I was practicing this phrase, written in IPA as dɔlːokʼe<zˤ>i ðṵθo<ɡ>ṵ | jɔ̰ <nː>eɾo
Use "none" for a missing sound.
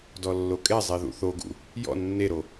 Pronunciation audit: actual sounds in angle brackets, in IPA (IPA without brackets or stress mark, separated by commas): zˤ, ɡ, nː